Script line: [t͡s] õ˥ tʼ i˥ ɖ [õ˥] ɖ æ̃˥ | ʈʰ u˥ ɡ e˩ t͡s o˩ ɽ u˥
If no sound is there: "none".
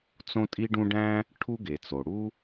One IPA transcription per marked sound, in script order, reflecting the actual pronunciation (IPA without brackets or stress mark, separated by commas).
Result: t͡s, ũ˥